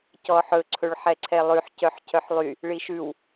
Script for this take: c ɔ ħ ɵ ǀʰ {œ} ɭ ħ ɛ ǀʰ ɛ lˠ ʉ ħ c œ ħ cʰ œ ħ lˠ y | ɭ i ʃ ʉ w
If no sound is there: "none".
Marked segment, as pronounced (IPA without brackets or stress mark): ɵ